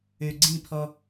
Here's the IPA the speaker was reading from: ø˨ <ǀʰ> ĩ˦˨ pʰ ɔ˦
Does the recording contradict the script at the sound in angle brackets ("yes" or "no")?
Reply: yes